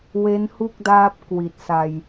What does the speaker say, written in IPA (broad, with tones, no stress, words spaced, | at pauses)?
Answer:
we˦˥nhu˥˩k̚daː˦˥p̚ kwi˨˩t̚sa˧j